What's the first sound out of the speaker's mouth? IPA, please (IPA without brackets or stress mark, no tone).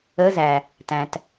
ə